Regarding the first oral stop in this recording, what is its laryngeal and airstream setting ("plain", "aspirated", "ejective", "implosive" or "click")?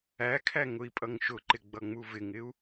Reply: aspirated